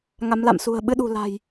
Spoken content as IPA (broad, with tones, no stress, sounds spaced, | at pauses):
ŋ a˨˦ m l a̰˧˨ m s ṳ˨˩ ə̯ ɓ ɨ˨˦ ɗ ṳ˨˩ l a̤˨˩ j